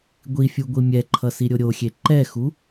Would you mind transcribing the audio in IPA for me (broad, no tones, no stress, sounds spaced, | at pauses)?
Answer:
ɡʷ i fʲ u ɡʷ i mʲ ɛ ǃʰ ʌ s i ɾʲ o ɾʲ o xʲ e ǃ ɛ x u